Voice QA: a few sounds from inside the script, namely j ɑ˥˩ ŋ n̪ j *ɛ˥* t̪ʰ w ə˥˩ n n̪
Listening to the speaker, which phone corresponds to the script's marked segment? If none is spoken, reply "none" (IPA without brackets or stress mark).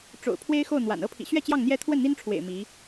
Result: ɛ˥